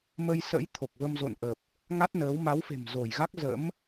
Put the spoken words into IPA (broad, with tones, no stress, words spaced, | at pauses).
mə˧jsə̰˧˥j t̪ʰo˨˩k̚və˧mzo̰˧˨nʔə˨˩p̚ | ŋa˦˥t̚nəː˨˦w ma˨˦wfe̤˨˩mzo˧˩jɣa˦˥k̚ zə̰˧˥m